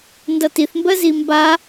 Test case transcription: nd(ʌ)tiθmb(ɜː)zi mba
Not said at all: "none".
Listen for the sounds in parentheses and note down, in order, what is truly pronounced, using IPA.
ʌ, ɜ

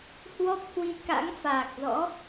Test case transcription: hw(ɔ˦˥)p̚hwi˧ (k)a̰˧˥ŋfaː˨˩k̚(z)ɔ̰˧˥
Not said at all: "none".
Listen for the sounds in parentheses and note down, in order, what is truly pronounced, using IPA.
ɔ˦˥, k, z

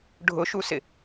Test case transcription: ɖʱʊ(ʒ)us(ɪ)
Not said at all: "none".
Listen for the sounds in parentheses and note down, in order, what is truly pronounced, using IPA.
ʃ, ɪ

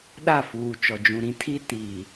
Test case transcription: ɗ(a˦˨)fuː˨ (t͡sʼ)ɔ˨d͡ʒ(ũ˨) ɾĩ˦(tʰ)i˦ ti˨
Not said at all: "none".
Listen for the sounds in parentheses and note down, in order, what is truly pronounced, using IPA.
a˦˨, t͡ʃ, ũ˨, tʰ

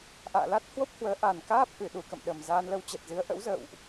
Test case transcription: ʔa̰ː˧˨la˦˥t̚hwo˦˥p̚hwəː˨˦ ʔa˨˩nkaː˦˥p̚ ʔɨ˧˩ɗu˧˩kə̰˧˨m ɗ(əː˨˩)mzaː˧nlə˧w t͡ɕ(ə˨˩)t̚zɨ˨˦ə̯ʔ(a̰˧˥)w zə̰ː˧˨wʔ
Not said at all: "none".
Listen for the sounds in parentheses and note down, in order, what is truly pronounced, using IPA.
ə˨˩, ə˨˩, ə̰˧˥

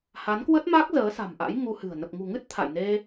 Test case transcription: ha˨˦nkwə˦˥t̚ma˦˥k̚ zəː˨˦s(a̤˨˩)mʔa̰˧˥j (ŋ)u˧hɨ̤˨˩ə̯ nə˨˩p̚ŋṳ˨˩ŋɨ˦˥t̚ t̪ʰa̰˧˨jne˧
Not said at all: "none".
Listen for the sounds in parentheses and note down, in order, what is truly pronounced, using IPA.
a̤˨˩, ŋ

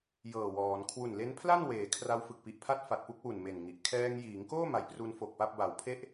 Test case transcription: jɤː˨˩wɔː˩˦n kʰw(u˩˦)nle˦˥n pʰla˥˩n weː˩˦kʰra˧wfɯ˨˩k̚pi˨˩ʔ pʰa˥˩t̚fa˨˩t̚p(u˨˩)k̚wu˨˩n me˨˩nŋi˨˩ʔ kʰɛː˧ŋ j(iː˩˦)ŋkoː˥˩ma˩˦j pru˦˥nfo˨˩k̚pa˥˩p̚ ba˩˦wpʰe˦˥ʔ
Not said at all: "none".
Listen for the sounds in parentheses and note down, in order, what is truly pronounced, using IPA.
u˨˩, u˥˩, iː˩˦

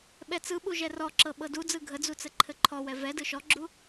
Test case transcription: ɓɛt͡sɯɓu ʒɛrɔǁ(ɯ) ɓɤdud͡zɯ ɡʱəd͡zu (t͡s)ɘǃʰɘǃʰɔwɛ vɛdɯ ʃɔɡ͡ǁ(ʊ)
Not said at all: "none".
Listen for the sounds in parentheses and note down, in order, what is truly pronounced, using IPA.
ɤ, t͡s, u

